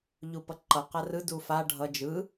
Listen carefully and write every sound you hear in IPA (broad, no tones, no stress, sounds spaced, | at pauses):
ʎ u p ʌ ǃ ʌ q a r ɯ d u f a ɖʱ ʌ d͡ʒ ɯ